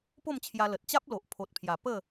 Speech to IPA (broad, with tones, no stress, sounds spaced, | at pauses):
p o˥˧ m t͡ɕʰ j a˧ l ə˨ t̚ t͡ɕ a˦ p̚ l o˨ ʔ pʰ o˨ t̚ pʰ j a˨˩ p ə˥˧